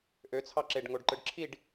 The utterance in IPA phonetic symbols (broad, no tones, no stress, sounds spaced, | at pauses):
ʔ ø t͡sʰ ɑ ǁ e ɖ ŋ o ɖ ǃ ɯ ɖ ǁʰ i ɖ